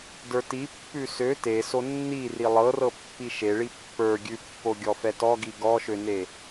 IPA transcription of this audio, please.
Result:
d ə˞ t i pː ʉ s ø t e s o nː i r i lˠ ɤ r ɤ pː i ʃ e ɭ i pː ə˞ ɡʲ ʉ pː o ɡʲ ɔ f ɛ t ɔ ɡ i ɡ ɔ ʃ ø n e

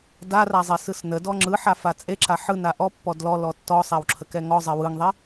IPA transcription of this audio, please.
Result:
d a r a zˤ e s ɯ s n ə d ɔ ŋ͡ǁ ɯ ħ a f a t͡sʼ e ǁ a ħ ɯ n a ʔ ɔ pː ɔ d l ɔ l ɔ tː ɔ sˤ a w ǁʰ ə k ɛ ŋ ɔ zˤ ɛ w ɯ ŋ ðˤ e

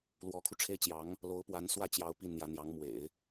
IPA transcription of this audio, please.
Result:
l w ɔ˧˥ kʰ u˧ ʈ͡ʂʰ e˥ ɪ̯ t͡ɕ j ɑ˧˥ ŋ | l o˧˥ ʊ̯ p w a˧˥ n s w ä˥˩ t͡ɕ j ɑ˧˥ ʊ̯ p i˥˩ n n̪ j ä˧˥ n̪ j ɑ˧˥ ŋ m w ḛ˨˩˦ ɪ̯

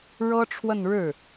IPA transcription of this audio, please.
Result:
ɻ ɤ˥ ʈ͡ʂʰ w ə˥˧ n ɻ ɻ̩˥˩

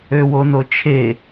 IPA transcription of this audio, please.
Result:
ø w o n o t͡ʃʰ e

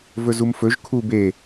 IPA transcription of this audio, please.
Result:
v ɵ z u m f ɵ ʒ kʰ u b e

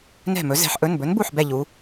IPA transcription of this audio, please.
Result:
n ɛ̤˥˩ m ɵ˨˥ z ɛ̤˩˧ ħ ʔ ɵ˩˧˩ n b ɵ˨˥ n b u˥˩ ħ b ɛ˥˩ ʎ u˩˧

